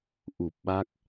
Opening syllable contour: low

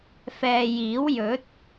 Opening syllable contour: low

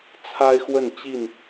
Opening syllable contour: high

